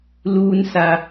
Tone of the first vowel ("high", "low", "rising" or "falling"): low